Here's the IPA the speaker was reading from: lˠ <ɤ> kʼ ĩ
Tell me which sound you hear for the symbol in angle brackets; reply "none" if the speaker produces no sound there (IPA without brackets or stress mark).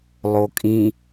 o